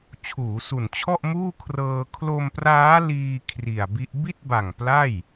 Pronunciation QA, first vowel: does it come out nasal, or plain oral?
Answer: oral